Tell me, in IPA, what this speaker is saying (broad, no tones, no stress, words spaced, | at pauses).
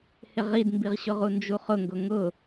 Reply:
hɪʁidmbiʁɕʊ ʁund͡ʒuχʊŋɡʊ ŋʊ